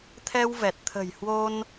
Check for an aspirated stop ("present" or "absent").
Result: present